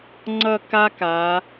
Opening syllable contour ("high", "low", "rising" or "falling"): falling